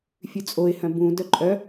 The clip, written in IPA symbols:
fʲ ʉ t͡sʼ o ɪ̯ h œ̃ b ũ d œ ǃʼ œ

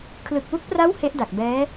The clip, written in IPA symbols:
kʰ l ɯ˨˩ k̚ w u˦˥ k̚ p r a˦˥ w h e˦˥ ʔ d a˨˩ k̚ b ɛː˦˥

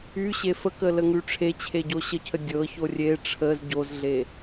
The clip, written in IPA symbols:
y ɕ e f ə k ə l ə ŋ y ʈ͡ʂʰ e t͡ɕʰ e ɟ o ɕ ə cʰ ə dʲ ɤ ç o rʲ e ʈ͡ʂʰ ə z ɟ o z ɮ e

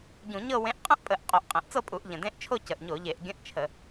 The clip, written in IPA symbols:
ɟ ũ˧˩˧ ɲ ɤ˥˧ w ẽ˧˥ ʔ qʼ ə̃˥˧ ʔ pʼ ə˧˩˧ ʔ qʼ o˧˩˧ ʔ qʼ ẽ˨˩ ʔ t͡s ɤ˥˧ pʼ u˧˩˧ ʔ ʎ ə̃˨˩ d ẽ˧˥˧ ʔ t͡ʃʰ o˥˧ c ə˨˩ ʔ ɲ o˧˩˧ ʎ e˧˩˧ ʔ ɡʲ ə̃˧˥˧ ʔ t͡ʃʰ ə˧˩˧

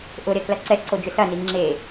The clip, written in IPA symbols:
ʔ ʊ ɾ e k l ɐ ǀ ɛ ǀ o d͡ʒ ʏ s ɐ n i ŋ͡ǁ e

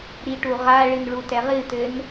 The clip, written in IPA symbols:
ɾ i ʈ u ʁ a ɭ ɨ n ɭ u t ɛ ʁ ɨ t ɘ n

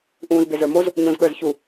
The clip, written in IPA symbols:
ʔ ũː z b e z ə˞ m o z | ɲ õ z ɠ ə˞ z ç u

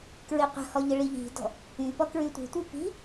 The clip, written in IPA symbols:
k ɹ i qʷ ə̤ h ɔ ʎ ə ɭ i ʎ i̤ d ɔ̤ | y p ɔ k ɹ y tʷ i̤ tʷ i p i̤

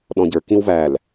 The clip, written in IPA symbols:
ɗ ɔ̃ ɟ ə˞ k ĩ w v æ l

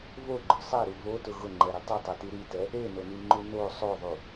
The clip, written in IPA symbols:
v o ɡ͡ǃ ʊ sˤ ɛ ɾ u v o t ʊ ɣ ʊ ŋ͡ǃ ɛ ɾ i tˤ ʊ tˤ ɛ t i ɾ i t ɛ | e n o n i ŋ͡ǃ u n o sˤ o ðˤ u

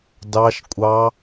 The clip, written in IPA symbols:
d ɑ˦ ʃ kʷʼ ɑ˦

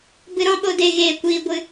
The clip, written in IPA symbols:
b ɨ˧ ɾ ɔ̃˦ ɓ o˧ d e˧ ɣ eː˧ kʷ iː˧ ɡʷ ɨ˧

